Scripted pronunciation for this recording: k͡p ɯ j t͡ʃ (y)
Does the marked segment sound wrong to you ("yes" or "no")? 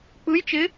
yes